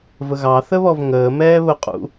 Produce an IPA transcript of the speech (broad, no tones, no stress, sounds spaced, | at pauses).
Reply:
v ə ɣ ɑ θ ə β ɔ v ŋ əː m ɛː β ʊ qʼ ṵ